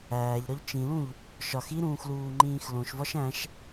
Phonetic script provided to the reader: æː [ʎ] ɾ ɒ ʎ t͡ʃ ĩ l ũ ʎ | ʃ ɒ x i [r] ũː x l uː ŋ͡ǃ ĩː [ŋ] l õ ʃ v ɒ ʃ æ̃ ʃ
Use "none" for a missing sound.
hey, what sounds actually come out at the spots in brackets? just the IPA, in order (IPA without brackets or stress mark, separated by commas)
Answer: ʎ, ɾ, x